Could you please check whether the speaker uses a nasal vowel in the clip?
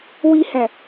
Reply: yes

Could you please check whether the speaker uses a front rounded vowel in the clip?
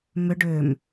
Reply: yes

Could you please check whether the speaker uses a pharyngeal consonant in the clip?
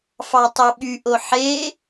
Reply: yes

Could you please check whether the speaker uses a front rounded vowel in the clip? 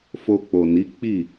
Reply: no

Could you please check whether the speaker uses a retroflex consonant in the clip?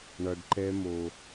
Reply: yes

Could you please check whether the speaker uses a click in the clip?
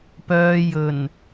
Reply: no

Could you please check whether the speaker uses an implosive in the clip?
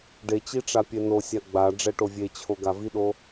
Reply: yes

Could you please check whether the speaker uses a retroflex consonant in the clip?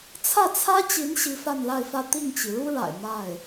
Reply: yes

